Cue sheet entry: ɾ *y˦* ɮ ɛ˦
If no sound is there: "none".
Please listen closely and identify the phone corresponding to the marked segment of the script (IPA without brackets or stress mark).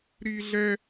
i˦